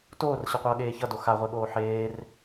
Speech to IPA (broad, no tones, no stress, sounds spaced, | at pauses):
t oː r ɕ ʌ qʷ ʌː ɠ eː ç ʌ d o x a ʁʷ e ɠ oː ħ eː r